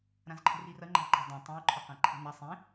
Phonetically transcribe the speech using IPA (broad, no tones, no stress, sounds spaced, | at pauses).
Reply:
ɾ ã z ǃʰ ə̤ r i r ɐ ŋ͡ǃ a̤ ǃ a̤ dˤ ã tˤ ə̃ u̯ ǃʰ ʌ q ã ǃʰ i̤ n ɐ sˤ ĩ